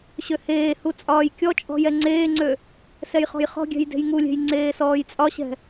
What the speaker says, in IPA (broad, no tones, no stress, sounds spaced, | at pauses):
ɕ ø h eː h u t͡sʼ ɒː j kʲ ɔ t͡ʃʼ ɔ̤ j ɛ ŋ͡ǀ eː ŋ͡ǀ ø | s ɛ j χ ɔ̤ j χ ɔ̤ ɡʲ ɛ̤ j d e̤ j ŋ u lʲ e̤ j ŋ͡ǀ eː s ɔː j t͡sʼ ɒ ɕ ɛ̤